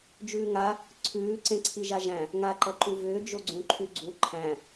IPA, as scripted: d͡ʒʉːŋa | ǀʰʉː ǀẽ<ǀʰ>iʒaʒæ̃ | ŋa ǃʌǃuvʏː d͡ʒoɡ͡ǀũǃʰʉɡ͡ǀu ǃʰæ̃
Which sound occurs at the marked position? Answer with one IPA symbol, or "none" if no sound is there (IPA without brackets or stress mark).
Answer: ǀʰ